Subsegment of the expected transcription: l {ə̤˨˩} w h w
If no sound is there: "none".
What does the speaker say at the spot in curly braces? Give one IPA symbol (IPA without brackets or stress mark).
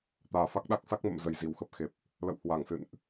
ə̰˧˨